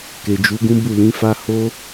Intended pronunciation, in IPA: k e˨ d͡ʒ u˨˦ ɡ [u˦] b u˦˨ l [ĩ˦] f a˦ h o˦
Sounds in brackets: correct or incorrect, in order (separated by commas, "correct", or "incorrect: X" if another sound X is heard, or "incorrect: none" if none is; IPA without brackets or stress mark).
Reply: incorrect: ũ˦, incorrect: ĩ˨˦